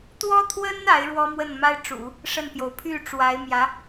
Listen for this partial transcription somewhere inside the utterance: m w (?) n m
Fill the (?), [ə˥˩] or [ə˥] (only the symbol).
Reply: ə˥˩